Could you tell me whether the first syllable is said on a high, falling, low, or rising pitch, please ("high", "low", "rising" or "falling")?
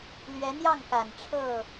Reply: rising